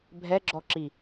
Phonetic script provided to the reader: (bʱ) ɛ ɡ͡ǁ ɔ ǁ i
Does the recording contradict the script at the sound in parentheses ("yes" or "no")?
no